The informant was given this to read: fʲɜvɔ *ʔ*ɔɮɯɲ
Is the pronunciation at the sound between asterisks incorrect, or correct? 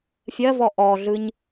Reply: correct